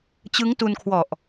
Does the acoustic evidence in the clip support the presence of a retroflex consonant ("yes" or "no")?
no